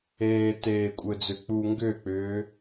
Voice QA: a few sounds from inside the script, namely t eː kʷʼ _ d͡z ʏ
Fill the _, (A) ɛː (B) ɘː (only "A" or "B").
B